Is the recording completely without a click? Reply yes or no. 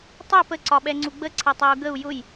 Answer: no